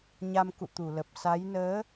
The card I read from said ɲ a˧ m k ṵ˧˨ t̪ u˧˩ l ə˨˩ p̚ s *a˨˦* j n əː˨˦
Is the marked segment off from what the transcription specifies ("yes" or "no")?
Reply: no